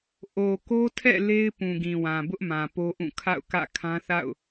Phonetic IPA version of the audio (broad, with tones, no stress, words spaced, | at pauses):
ʔo˨ko˦tʰɛ̰˦˨ le˦ɪ̯ pũ˨ɡĩ˨wã˨bʊ˦ʔ mã˨po˦ʔũ˦˨ kʰa̰˦˨ʊ̯kä̰˦˨ kʰã˦θa̰˦˨ʊ̯